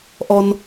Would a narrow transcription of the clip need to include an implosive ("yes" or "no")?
no